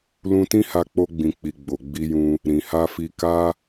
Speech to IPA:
lũ˧tĩ˦ha˧ k͡po˧ɡ͡bĩ˨k͡pi˨ ɡ͡bo˨ɡ͡bi˧jũ˧ | ɾĩ˨ha˧fi˧ ka˦

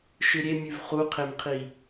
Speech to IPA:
ʃɨɾʲemʲʉv χuqʰemqʰi

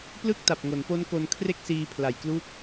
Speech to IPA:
plɯ˥˩k̚ta˨˩p̚ ŋo˩˦npo˦˥nko˧nkʰre˥˩k̚ siː˧pʰla˨˩jklu˦˥k̚

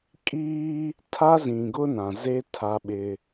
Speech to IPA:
kʼiː˦ | tʰa˦zĩ˨ɡʊ˦ nã˨ze˦ tʰa˦ɓɪ˦

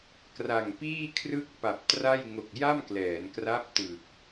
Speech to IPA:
kra˨˩ŋpiː˥˩kʰrɯ˥˩k̚ pa˨˩p̚tra˥˩j ŋo˨˩k̚ja˥˩mklɛː˩˦n kra˦˥p̚tɯ˨˩k̚

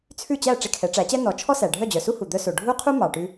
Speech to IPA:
t͡sʰʉ˥˩t͡ɕæ˥˩ ʈ͡ʂe˧kʰɛ˩˥ʈ͡ʂæ˩˥t͡ɕɛ˥ nɔ˩˥ t͡ʃʰɔ˥sæ˩ɖʱœ˥˩ d͡ʑœ˩su˥hu˩ d̪œ˧so˩ ɖʱu˥qʰu˥ mɑ˩ʈʉ˧

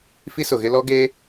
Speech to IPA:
fi˦sʊ˨ɣɪ˦lɔ˦ ɡe˦

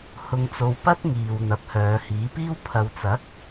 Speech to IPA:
hʊ˧ŋt͡so˧w pɐ˥t̚ŋiː˨w n̪ɐ˨˥p̚hœː˨˧hiː˨˥piː˥w pʰɐ˨wt͡sɐ˨˥k̚

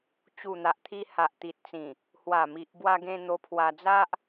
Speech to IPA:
t͡ɕu˨˩n̪a˨ʔt̪ʰi˧ ha˨ʔt̪i˨t̚t͡sĩ˨˩ | hwa˨˩mi˨ʔ bwa˧ɡẽ˧ n̪o˧pʰwa˧d͡za˦ʔ

